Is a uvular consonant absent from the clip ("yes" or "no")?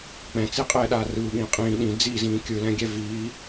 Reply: no